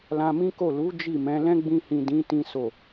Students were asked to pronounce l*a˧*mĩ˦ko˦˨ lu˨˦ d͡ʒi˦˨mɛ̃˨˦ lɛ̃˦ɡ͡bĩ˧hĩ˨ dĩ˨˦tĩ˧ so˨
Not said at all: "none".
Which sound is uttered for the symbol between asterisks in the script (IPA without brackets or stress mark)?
ã˧